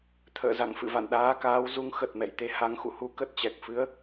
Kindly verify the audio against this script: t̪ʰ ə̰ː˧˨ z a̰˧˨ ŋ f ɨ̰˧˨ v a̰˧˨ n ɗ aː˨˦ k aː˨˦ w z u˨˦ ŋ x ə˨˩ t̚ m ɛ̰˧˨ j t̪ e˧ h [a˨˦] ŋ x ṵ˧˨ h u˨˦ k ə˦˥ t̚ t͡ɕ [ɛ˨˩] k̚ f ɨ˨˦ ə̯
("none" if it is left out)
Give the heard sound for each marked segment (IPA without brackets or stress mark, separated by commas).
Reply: a˨˦, ɛ˨˩